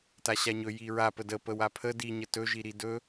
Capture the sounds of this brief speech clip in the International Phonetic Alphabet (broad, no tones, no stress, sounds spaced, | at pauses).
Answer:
t a ɕ a ɲ ɵ j i ɹ a p ə d ə p ə w a pʰ ə d i ɲ ə t ɵ ʒ i ɾ i d ɵ